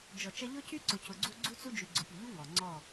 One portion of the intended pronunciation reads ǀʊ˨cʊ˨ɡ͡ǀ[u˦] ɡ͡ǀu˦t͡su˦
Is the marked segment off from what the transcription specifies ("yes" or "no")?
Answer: no